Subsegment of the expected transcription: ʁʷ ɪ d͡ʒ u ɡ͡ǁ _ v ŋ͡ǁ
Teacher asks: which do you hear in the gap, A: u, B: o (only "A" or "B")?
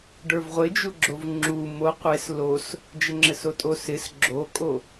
B